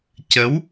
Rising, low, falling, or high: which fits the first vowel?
rising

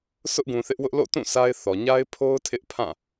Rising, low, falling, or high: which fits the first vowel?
high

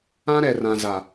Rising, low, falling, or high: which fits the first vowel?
high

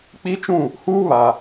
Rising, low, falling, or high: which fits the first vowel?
high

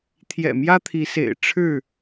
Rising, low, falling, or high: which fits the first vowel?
low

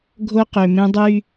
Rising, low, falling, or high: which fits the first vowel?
high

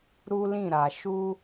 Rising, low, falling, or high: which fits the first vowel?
high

